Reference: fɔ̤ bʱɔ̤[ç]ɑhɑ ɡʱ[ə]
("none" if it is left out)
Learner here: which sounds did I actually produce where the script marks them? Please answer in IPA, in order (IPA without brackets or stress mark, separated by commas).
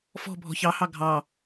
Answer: ç, ɑ